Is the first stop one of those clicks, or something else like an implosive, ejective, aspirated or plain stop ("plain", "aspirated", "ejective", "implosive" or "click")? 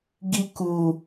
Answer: plain